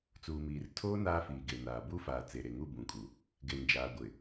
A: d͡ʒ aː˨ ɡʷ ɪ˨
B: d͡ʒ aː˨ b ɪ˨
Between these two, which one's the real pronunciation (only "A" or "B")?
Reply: A